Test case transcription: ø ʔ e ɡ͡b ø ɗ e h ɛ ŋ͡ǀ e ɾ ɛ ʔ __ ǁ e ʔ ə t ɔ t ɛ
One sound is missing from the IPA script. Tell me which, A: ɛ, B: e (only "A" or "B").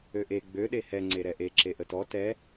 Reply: B